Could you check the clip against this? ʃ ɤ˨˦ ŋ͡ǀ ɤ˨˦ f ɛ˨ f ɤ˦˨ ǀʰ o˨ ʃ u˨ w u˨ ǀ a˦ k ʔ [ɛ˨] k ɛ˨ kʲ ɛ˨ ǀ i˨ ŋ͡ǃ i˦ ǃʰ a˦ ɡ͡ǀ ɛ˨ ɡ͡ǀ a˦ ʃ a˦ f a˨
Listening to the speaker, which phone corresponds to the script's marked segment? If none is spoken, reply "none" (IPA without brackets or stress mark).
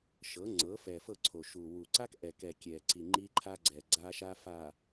ɛ˨